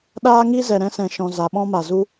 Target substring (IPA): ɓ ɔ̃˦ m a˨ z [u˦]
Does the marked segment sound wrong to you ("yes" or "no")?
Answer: no